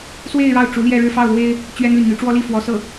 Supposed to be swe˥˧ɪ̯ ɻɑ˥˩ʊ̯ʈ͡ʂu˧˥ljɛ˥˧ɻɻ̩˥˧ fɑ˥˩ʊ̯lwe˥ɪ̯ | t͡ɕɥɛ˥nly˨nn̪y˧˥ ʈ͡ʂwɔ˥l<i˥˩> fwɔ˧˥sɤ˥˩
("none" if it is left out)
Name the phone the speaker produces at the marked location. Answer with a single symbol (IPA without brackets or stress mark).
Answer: i˥˩